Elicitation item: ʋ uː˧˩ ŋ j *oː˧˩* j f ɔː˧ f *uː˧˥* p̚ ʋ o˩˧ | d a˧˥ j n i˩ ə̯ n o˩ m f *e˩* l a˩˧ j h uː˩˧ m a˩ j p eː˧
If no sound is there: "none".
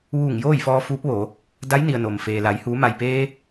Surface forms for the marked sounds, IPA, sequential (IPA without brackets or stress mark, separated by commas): oː˥˨, uː˧˥, eː˩